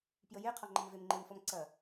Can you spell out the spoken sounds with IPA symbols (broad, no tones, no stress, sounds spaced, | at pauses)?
p j ə j e qʰ ɔ ŋ͡ǃ ɐ m v e m ŋ͡ǃ e m f ɔ m ǀ ɐ